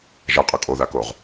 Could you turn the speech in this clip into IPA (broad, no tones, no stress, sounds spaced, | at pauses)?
ʒ a qʼ ə˞ kʼ o ð a k o ʁ